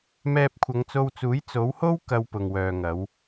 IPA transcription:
m ɛː˧ p̚ kʷʰ ɐ˨˧ ŋ t͡s o˧ w t͡s uː˨˥ j t͡s o˨˥ w h o˥ w k ɐ˧ w p ʊ˨ ŋ w œː˨ ŋ ɐ˨˧ w

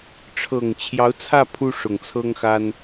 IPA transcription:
ʈ͡ʂʰ ɤ˨˩ ŋ t͡ɕʰ j ɑ˧˥ ʊ̯ t͡sʰ ä˥˩ pʰ u˥ ʂ ʊ˨˩ ŋ t͡sʰ ɤ˥ ŋ x a˥ n

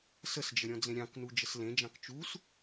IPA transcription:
s ə s d͡ʒ ə ɾʲ ɔ̃ d͡z ẽ ɾʲ ɑ̃ k n u d͡ʒ ə s l ẽ d͡ʒ ɑ̃ k t͡ʃ u s

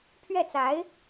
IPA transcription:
pʰ ɥ ɛ˥˩ t͡s a˧˥ ɪ̯

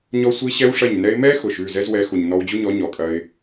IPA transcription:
ɲ ɔ˦ sʷ i˦ ɕ ɛ˦ w ʂ ɐ˦˨ ɲ n ɛ˦ ɪ̯ m ɛ˦ x ʊ˨ ʃ ʉ˦˨ z ɛ˦ z w ɛ˨˦ x u˨ ɲ n ɔ˧ w d͡ʑ u˦ ɲ ɔ˨˦ ɲ ɔ˨ kʼ ɐ˧ ɪ̯

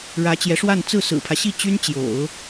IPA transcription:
ɻ ä˧˥ t͡ɕ j ɛ˧˥ ʂ w a˥˧ n t͡s ɹ̩˥˩ s ɹ̩˨˩ pʰ ä˦ ɕ i˥˩ t͡ɕ y˥ n t͡ɕ j o̰˨˩˦ ʊ̯

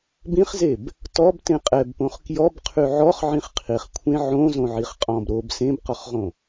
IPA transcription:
b ĩ χ z e b | t ɔ b t ẽ qʼ ɛ b p õ χ k j ɔ b qʰ y ʕ ɔ χ ʕ ĩ χ qʰ i χ kʷʰ ẽ ʕ õ z õ ʕ i χ qʼ ɔ̃ b ɾ o b s ẽ b q ɔ χ ʁ õ

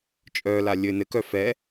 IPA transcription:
t͡ʃʼ œ l a lʲ ɘ n ɘ k œ f ɛ

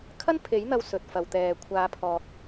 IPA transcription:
kʰ ɐ˥ n pʰ e˨˥ j n̪ ɐ˧ w s ɵ˨ t̚ f ɐ˨ w t̪ ɛː˨ kʷʰ aː˨˧ pʰ ɔː˨ k̚

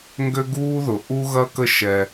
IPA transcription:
ŋ ɡ ø˦ ɡ uː˦ ð ʊ˨ ʔ u˦ ɣ ɐ˦ k ə˦ ʃ ɛ˦

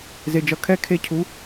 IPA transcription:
z e˨ d͡ʒ ʌ˨ kʰ ɛ˦ kʰ e˦ cʰ u˨˦

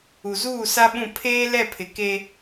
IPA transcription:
u˨ z uː˦˨ s a˦ ɓ ũ˦˨ pʰ eː˦ l ɛ˦˨ pʰ ɪ˨ k e˦

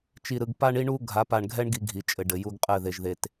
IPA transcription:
t͡ʃ i˨ ɾ ɯ˨ ɡ p a˦ ɳ i˦ ɳ u˦ ɡʱ a˨˦ p a˨ ɳ ɡʱ ɛ˦ ɳ ɡ i˦ ɡʱ i˨ t͡ʃʼ ɘ˨ ɖ ɘ˨ j u˦ ɡ qʼ ɘ˦˨ ð e˨ ʒ ð e˨ t

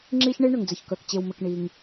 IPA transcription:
ŋ͡ǁ i˥ ç ɳ e˥ ɳ ʏ˩ ŋ d͡z ɘ˩ ç k œ˩ k t͡ɕ e˩ w m ɘ˩ k ɳ i˩ ŋ

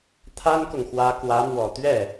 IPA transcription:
t̪ʰ a˥ n k ʊ˨ ŋ x w ä˧˥ k w ä˧˥ m w ɔ˨˩ t̪ ɥ ɛ˥˩

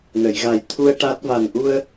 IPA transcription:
n ə˨˩˨ j ɣ a˨˩ j t̪ʰ u˧ ə̯ ʈ a˦˥ t̚ v a˨˩ n ʔ u˧ ə̯

